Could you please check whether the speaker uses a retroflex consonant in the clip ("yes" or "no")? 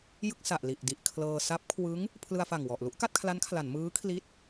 no